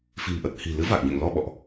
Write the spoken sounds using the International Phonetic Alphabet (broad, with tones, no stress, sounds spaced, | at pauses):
f i̤˨˩ m ʔ ə˨˩ t̚ h i̤˨˩ l ɨ˨˦ v a˨˩ k̚ ɲ ḛ˧˨ ŋ l ɔ˧ ɓ ɔ̰˧˨ ʔ